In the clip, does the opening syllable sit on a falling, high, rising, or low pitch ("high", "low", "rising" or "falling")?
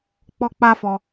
high